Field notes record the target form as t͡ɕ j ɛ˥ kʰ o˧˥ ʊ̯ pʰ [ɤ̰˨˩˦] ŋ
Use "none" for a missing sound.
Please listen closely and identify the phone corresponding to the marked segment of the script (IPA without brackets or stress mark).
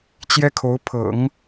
ɤ̰˨˩˦